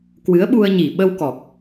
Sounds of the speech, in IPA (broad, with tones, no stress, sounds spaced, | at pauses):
k w ɨ˨˦ ə̯ ɓ u˧ ə̯ ɲ i˨˩ ɓ ə˧ w k ɔ˨˩ k̚